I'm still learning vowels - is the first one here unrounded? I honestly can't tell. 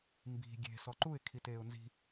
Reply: yes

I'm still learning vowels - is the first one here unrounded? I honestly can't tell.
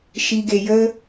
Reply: yes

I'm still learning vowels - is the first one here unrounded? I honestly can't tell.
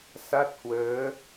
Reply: yes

